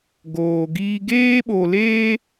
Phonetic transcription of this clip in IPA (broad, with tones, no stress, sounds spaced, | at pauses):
ɡ oː˧ ɡ iː˦ ɡ eː˦ ɓ o˧ l eː˦